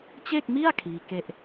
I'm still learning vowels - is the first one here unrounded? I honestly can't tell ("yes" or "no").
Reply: yes